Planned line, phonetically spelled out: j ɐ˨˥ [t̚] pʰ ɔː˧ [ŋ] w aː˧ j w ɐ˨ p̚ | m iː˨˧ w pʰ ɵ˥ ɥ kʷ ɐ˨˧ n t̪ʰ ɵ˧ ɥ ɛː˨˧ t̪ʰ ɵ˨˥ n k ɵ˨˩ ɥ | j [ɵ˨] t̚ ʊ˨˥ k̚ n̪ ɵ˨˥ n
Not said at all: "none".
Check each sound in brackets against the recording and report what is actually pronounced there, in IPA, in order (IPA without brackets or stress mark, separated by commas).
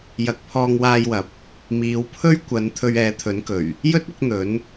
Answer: k̚, ŋ, ɵ˥